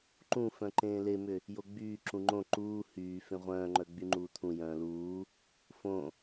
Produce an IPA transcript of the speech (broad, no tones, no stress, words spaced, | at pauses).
ǃũfœ̃ǃẽː lemʏ | joɡ͡byː ǁũŋ͡ǃõ ǃuː hyː fẽʁʷœ̃ːŋ͡ǃœ ɡ͡byŋ͡ǃuːt̪ʰũ jœ̃ːluː | fõ